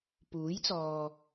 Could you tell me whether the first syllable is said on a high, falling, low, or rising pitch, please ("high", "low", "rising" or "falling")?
rising